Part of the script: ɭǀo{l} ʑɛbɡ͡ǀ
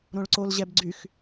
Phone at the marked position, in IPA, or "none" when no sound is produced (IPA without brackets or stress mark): l